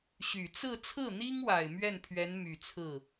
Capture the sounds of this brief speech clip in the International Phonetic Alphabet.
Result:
ɕ y˨˩ t͡s ɹ̩˥˧ t͡sʰ ɹ̩˥˩ n̪ i˥ ŋ w a˨˩ ɪ̯ m ɥ ɛ˥˩ n pʰ ɥ ɛ˧˥ n m y˨˩ t͡sʰ ɹ̩˥˩

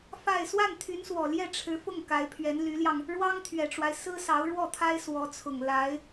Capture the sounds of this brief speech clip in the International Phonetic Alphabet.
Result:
f a˥˧ ɪ̯ s w a˥˩ n t̪ʰ y˧˥ n s w ɔ˨˩ l j ɛ˥˩ ʈ͡ʂʰ ɻ̩˧˥ f ʊ˥˩ ŋ k a˧˥ ɪ̯ pʰ ɥ ɛ˧˥ n l y˧˥ l j ɑ˧ ŋ | ɻ w ɑ˥ ŋ t̪ʰ ɥ ɛ˨˩ ʈ͡ʂ w a˦ ɪ̯ s ɹ̩˥ s ɑ˧˥ ʊ̯ ɻ w ɔ˥˩ t̪ʰ a˥ ɪ̯ s w ɔ˧˥ t͡sʰ ʊ˨˩ ŋ l a˧˥ ɪ̯

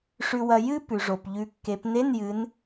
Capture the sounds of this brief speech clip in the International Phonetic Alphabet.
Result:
ʂ ʉ˧ w ɐ˧ j ɨ˥ p ʉ˩ ʐ o˩ p ʎ ʉ˨˥ kː e˩˧ p n e˧˥˧ n j ɨ˩˧ n

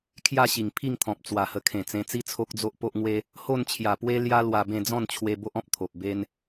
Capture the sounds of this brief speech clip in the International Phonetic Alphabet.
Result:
kʰ j a˥˧ ɕ i˨˩ ŋ pʰ i˥˧ ŋ t̪ʰ ɔ̃˨ p̚ t͡s w a˨˩ h ə˧ kʰ ẽ˨˩ t͡s ẽ˧ t͡s i˦ t͡sʰ o˦ k̚ d͡z o˦ ʔ p o˦ ʔ ŋ w e˦ | h o˥˧ n t͡ɕʰ j a˨˩ p w e˦ l j a˦ l w a˧ b ẽ˥˧ d͡z ɔ̃˥˧ n t͡ɕʰ w e˧ b o˦ ʔ ɔ̃˦ p̚ t̪ʰ o˨ p̚ b e˦ n

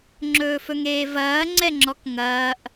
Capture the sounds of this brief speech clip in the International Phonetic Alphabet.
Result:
ŋ͡ǁ ɵː f ɵ ŋ eː v ɐː ŋ͡ǀ ɛ ŋ͡ǁ ɔ k ŋ ɐː ʔ

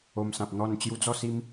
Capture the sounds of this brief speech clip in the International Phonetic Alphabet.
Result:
o˧ m s ã˨ p̚ n̪ ɔ˥˧ n t͡ɕ j u˧ d͡z ɔ˥˧ s i˧ m

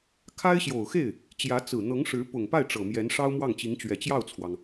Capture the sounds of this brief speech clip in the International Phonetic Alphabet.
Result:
kʰ a˥ ɪ̯ ɕ j o˨˩ ʊ̯ x e˥˩ ɪ̯ | t͡ɕ j ä˧˥ t͡s ɹ̩˨˩ n̪ ɤ˧˥ ŋ ʂ ɻ̩˧˥ p ʊ˨˩ ŋ p a˥˩ ɪ̯ ʈ͡ʂ ɤ˨˩ m j ɛ˧˥ n ʂ ɑ˥ ʊ̯ m w ɑ˥˩ ŋ t͡ɕ i˧˥ ŋ t͡ɕ ɥ ɛ˨˩ t͡ɕ j ɑ˥˩ ʊ̯ t͡sʰ w ɑ˩ ŋ

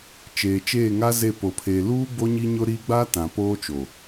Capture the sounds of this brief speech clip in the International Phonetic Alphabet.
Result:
t͡ʃ eː˨ t͡ʃ eː˦˨ ŋ a˦ z e˦˨ p o˨ pʰ eː˨ l uː˦ b o˦ ɲ i˦ ɲ ʊ˦ ɾ i˦ ɡ͡b a˦ t ã˨ p oː˦ t͡ʃ o˨

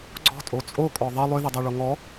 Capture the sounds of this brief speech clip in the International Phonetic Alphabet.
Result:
ɡ͡ǀ ɔ̤ tʼ o t͡sʼ o kʼ ɔ ðˤ ʌ lˠ ʏ ð ə dˤ ɛ ɭ o ŋ ɔ

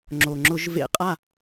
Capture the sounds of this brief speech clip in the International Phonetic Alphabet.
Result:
ŋ͡ǁ o˩ ŋ͡ǁ ʊ˧˩˧ ʒ v ḛ˧˩˧ qʼ a˥˩

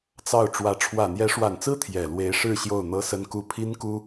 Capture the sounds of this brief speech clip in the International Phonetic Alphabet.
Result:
t͡s ɑ˥˩ ʊ̯ ʈ͡ʂ w ä˧˥ ʈ͡ʂʰ w ä˨˩ n̪ j ɛ˧˥ ʂ w a˨˩ n t͡s ɹ̩˥ t̪ʰ j ɛ˨˩ l w e˧˥ ɪ̯ ʂ ɻ̩˥˧ ɕ j o˥˩ ʊ̯ n̪ ɤ˥ s ə˥ n k u˥ pʰ i˥ n k u˥

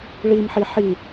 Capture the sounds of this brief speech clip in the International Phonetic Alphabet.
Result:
ɭ i m ħ i ħ i

